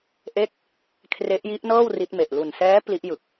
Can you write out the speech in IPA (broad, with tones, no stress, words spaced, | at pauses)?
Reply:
ʔe˦˥k̚ | kʰre˦˥ʔji˦˥ʔnɤː˥˩w ri˦˥t̚me˨˩ʔ lu˨˩nsɛː˦˥ pli˦˥ʔjɯ˨˩k̚